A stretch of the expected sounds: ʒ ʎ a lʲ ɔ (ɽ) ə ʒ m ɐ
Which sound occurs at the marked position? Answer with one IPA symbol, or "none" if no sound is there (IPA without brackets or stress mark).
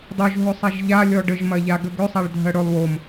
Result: ɖ